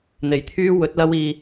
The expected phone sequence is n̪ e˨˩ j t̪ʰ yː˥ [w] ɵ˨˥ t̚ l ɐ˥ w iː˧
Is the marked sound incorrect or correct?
correct